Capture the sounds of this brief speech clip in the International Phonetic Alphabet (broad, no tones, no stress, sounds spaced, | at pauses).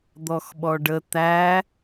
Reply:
d̪ ɔ x ɓ ɔ ɖ ə t̪ æ